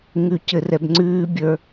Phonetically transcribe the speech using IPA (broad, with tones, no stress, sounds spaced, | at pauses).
ŋ ʉ˦ c ɘ˦ r ɛ˦ b ŋ͡ǀ ʉː˦ bʲ ə˞˦